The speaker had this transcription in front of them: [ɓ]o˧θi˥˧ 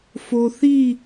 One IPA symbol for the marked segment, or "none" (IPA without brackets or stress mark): f